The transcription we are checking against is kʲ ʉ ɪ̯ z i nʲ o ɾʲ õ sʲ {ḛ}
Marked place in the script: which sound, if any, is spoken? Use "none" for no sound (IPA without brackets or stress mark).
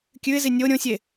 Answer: e